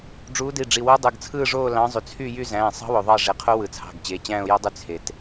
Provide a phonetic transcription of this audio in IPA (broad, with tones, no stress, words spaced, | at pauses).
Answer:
ɖ͡ʐuː˨˦di˩˧˩ɖ͡ʐi˩˧˩wo˦˥ dˤɯ˩˧˩ɡt͡sʰɯː˥˧ʐoː˥˧ lɑ̃˨˦zˤy˩ t͡sʰy˥˧jy˥˧ zæ̃ː˩˧˩sˤɑ̤˦˥wo˩ ðˤɑ˥˧ʐe˩˧˩qʰo˦˥ wɯ˩t͡sʰɑ̤˩˧˩ɡt͡ɕe˩˧˩t͡ɕæ̃ː˥˧ʊ̯ jo˦˥dˤy˦˥ t͡sʰe˩t